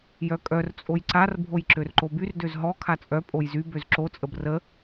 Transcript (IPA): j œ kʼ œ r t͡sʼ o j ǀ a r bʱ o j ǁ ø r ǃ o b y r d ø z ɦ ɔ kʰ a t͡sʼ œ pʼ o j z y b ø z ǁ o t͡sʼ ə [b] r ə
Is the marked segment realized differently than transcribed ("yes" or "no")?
no